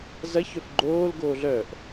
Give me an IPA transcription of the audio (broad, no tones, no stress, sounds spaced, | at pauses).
z ɐ ç œ f ɡ͡ǃ oː l ɡ oː ɮ œ ʔ